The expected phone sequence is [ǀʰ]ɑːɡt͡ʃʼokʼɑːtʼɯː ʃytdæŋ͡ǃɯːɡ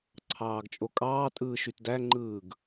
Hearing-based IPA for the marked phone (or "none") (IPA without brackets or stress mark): ǀʰ